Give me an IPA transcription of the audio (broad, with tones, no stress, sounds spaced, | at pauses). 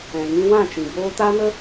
ɛ̃˨ ŋ ĩ˧ w ã˦˨ t͡ʃ ĩ˨ b oː˧ t a˦ n ə˦